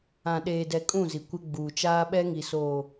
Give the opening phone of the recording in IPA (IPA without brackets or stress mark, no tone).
ã